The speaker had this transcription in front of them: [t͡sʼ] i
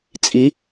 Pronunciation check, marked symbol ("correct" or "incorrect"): correct